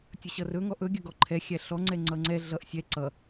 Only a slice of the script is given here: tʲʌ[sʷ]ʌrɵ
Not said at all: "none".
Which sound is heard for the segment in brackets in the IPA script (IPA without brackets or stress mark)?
ɕ